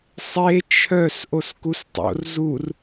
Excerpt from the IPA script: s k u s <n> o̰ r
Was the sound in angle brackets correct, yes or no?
no